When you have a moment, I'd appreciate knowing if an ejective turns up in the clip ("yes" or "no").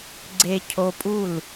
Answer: yes